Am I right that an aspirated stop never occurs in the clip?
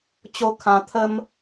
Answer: no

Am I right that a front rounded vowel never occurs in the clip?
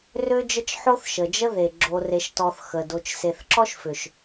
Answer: no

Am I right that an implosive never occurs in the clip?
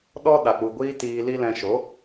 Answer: no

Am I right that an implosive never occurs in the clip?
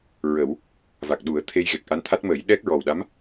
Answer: no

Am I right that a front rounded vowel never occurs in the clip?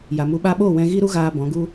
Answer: yes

